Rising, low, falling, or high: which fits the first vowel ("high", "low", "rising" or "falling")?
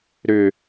low